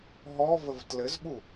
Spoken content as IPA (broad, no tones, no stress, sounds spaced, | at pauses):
ɦ ɔ v ə v t l ɘ z ɓ u